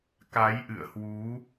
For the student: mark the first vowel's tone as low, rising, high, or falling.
rising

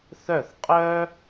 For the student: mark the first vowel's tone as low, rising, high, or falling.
falling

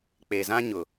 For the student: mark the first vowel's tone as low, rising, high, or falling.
low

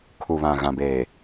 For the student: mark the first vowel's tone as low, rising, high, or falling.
low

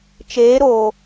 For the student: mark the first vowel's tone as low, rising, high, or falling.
rising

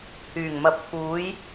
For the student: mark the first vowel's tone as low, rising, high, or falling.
low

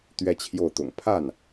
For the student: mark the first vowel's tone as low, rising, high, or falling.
high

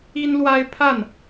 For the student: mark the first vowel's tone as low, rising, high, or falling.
high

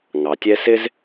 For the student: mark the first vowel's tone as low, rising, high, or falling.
low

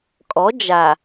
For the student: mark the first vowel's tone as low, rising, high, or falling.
rising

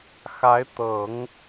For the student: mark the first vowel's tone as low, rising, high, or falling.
rising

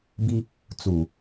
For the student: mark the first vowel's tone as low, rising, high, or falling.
high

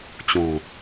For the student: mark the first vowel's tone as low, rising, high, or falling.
low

